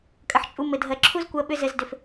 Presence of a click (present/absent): present